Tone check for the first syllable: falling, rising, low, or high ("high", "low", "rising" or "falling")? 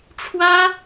high